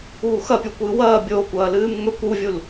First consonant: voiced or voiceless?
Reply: voiceless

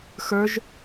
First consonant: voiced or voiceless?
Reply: voiceless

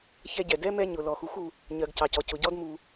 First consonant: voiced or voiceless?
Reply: voiceless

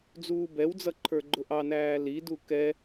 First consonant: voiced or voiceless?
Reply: voiced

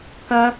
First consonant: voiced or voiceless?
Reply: voiceless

